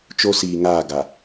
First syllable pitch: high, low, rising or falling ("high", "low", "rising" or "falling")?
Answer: high